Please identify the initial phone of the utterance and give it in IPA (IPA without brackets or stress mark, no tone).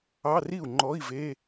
ɑ